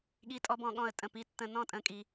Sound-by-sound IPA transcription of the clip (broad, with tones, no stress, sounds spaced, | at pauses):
ɠ i˨˦ tʼ ɔ˧˩˧ b ɔ̃˧˩ ɠ ɔ̃˥˩ ə̯ tʼ ə̃˧˩ p i˨˦ tː ə̃˧˩ n ɔ̃˥˩ tʼ ə̃˧˩ kʼ i˧˩˧